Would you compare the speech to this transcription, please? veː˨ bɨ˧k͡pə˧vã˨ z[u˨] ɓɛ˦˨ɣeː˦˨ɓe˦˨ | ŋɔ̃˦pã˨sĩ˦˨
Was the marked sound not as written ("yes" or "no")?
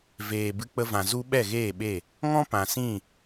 yes